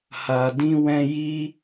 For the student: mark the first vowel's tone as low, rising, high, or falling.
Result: low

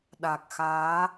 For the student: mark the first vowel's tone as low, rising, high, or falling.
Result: low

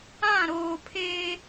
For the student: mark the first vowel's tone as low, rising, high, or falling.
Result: falling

